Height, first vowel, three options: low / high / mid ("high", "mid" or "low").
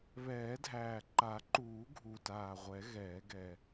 mid